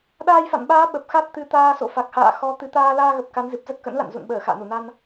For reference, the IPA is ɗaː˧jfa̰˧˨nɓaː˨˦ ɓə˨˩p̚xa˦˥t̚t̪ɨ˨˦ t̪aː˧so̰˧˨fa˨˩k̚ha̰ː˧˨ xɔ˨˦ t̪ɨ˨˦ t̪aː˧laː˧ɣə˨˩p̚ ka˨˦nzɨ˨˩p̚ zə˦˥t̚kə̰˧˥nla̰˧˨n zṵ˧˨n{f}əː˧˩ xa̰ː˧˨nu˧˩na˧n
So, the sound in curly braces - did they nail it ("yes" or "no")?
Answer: no